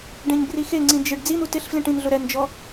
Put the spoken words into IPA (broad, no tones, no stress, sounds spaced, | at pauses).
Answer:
ɖ ẽ ɲ b r i x e ŋ͡ǀ ĩ d͡ʒ ɪ ɖ d͡z i n̪ u t ɪ ɬ f l ĩ ʈ ĩ n ɮ ʊ ɾ ɛ n d͡ʒ ɔ